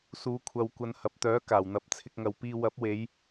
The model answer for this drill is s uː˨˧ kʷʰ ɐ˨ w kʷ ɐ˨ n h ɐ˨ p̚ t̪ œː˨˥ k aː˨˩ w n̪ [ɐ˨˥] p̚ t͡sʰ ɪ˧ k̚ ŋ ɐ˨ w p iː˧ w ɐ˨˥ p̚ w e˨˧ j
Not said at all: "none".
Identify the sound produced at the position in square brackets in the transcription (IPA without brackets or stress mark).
ɐ˨˥